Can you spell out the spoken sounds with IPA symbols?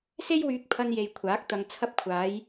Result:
se˥jwyː˧k̚pʰɐ˧n je˨j kʷʰaː˨˥k̚t̪ɐ˧ŋ t͡sʰɐ˧p̚kʷʰaː˨˧j

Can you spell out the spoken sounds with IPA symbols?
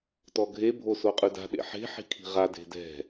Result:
tɔɡʱe bʱosoqʼʉda̤ ɗḛħe̤ ħi̤kʰi̤ʁa de̤dɛ̤

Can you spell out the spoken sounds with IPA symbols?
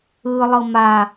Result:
ɯlˠɤ ma

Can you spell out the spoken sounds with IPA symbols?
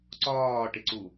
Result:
ǀɒːʈɪǀu

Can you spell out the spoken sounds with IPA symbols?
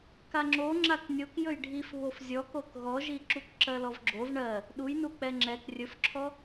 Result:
kaŋ͡ǁo ŋ͡ǁaknʲok jɵjɖʱif βofzʲɔkok ɣɔʒi ǁukǁɜlɔvɡ͡ǁov ɳɜ | ɗujnu k͡pɛŋ͡ǁɛk rʲɵfǁʰɔ

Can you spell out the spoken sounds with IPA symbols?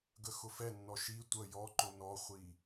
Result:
ɡəxʊfɛnːɔ ʃi tʷə jɔǃʊ nɔχʷi

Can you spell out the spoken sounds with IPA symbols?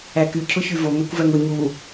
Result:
æky cʰʊçyvo ŋækʷvæŋʊ ɲu

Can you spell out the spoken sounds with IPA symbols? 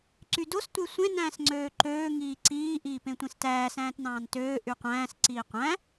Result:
ǀydos tʷesʷẽ næ̃ːsŋ͡ǀøːǃøː ŋiːǀiː ʔiːpẽtʷẽstæː sæ̃ːtnɑ̃ːntøː ʔyqʷæ̃ːs ǀiːqʷæ̃

